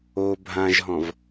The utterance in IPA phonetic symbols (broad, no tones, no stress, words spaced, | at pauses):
o bʱãʒɦɔ̃v